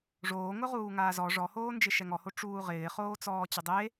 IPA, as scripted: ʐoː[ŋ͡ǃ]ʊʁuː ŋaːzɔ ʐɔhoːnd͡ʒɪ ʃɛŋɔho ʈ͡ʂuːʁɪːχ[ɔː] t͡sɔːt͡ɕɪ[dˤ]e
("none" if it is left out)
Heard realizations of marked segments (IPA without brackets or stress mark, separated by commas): ŋ, oː, dˤ